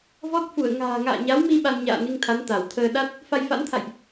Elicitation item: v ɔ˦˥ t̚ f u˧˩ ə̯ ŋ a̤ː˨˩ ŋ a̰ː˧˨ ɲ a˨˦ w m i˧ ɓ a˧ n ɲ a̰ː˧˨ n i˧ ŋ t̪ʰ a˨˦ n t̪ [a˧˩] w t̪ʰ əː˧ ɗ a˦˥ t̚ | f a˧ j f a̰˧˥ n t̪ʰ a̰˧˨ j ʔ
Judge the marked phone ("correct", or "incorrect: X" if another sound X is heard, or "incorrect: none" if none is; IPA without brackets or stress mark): correct